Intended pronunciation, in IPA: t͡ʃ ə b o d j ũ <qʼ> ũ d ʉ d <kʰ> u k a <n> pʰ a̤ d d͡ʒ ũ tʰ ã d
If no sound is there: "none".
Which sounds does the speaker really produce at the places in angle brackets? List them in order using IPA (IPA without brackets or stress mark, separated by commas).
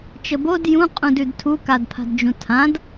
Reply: qʼ, tʰ, d